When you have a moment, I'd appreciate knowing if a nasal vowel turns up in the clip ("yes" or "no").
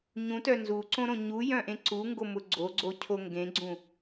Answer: yes